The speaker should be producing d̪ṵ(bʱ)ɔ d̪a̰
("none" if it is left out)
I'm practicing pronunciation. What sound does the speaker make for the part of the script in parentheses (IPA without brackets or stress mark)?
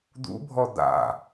bʱ